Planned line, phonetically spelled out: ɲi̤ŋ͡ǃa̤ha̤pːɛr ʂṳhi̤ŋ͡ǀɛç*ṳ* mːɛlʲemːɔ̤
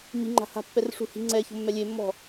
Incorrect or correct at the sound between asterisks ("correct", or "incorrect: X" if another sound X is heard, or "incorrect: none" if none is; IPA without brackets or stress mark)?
incorrect: o̤